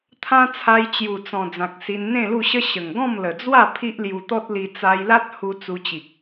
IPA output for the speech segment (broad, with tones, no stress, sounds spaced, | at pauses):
t̪ʰ ã˦ t͡sʰ a˧ j t͡ɕ j u˨˩ t͡s ɔ̃˨˩ d͡z ã˨ k̚ s i˧ n n̪ ẽ˥˧ l u˥˧ ɕ ə˦ ɕ ə˨˩ ŋ ɡ ɔ̃˥˧ m l ə˨˩ d͡z w a˥˧ pʰ i˦ ʔ l j u˧ t̪ ɔ˦ t̚ l i˧ t͡s a˧ j l a˦ t̚ h u˧ t͡s u˧ t͡ɕ i˨ k̚